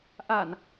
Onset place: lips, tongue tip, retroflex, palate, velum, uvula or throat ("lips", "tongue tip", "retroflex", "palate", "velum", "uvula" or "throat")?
throat